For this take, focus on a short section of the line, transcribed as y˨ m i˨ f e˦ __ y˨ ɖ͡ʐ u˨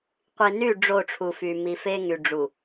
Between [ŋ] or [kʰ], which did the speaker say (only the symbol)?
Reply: ŋ